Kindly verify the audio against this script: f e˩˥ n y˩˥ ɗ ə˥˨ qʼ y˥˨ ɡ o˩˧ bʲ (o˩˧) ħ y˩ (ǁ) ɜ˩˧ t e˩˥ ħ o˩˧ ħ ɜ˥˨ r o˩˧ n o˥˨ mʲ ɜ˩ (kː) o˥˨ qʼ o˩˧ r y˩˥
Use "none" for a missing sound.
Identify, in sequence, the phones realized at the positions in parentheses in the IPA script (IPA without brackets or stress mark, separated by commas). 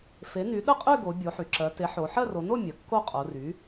o˩˧, ǁ, kː